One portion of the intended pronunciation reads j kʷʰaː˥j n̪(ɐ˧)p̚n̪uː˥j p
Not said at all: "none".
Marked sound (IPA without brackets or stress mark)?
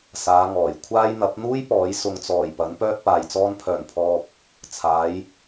ɐ˨˥